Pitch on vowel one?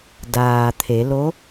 low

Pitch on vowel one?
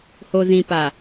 low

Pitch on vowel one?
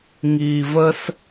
low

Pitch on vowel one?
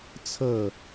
falling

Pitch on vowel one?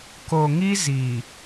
low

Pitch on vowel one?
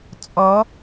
rising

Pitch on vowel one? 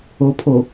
low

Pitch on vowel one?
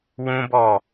high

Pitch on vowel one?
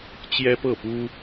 high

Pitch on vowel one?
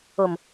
low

